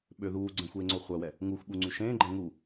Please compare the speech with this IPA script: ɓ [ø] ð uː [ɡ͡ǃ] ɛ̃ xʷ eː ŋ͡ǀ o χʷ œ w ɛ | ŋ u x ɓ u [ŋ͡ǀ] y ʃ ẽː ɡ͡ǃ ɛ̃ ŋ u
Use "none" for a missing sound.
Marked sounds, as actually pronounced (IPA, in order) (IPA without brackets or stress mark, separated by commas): ø, ɡ͡ǀ, ŋ͡ǀ